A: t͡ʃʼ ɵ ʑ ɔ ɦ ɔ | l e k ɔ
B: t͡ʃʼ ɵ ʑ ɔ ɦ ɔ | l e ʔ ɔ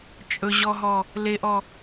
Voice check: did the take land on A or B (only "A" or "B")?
B